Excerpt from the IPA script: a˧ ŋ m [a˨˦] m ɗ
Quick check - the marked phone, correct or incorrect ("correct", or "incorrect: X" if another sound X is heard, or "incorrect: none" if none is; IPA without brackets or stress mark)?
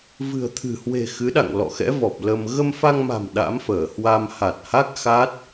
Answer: incorrect: a̤˨˩